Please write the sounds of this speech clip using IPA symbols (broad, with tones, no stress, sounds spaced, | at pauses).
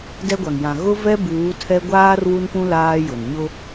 d ɛ˦ ɡʷ a˨ ŋ j ã˨ ɣ ʊ˦ v ɛ˦ b uː˨˦ tʰ ɛ˦ ɡʷ aː˦ r w u˦ n p ũ˦ l aː˦ j ʊ˨ n ɲ ʊ˦